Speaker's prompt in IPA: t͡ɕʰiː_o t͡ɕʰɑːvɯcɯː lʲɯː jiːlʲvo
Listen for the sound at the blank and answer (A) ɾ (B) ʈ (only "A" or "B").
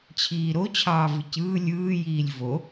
A